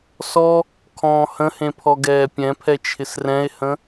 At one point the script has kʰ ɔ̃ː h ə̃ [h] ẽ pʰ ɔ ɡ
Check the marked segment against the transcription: correct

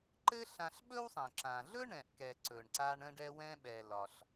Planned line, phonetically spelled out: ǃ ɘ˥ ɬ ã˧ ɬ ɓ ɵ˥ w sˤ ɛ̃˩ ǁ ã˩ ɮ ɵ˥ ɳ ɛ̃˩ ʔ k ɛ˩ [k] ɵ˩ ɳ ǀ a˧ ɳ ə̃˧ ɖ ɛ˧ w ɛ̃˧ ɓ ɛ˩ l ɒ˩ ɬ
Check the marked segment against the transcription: incorrect: ǀ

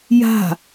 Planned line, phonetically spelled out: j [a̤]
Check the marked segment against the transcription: correct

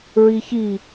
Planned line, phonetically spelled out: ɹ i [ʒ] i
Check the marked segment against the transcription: incorrect: ç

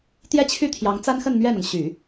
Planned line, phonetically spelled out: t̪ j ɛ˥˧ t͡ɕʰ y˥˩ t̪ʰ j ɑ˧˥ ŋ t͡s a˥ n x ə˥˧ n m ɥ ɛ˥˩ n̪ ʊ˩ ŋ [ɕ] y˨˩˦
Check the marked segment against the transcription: correct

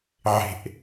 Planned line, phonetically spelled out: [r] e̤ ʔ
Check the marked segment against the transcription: incorrect: ʕ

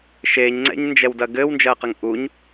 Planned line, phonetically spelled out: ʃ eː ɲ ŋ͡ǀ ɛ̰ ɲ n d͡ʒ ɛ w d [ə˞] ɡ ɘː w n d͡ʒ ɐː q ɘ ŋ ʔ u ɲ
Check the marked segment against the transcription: incorrect: ɐ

